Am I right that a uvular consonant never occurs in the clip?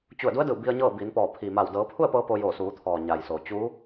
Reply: yes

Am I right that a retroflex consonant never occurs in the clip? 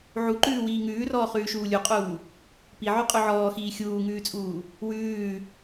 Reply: yes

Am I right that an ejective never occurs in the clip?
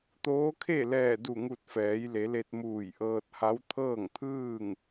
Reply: yes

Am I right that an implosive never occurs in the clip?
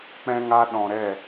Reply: no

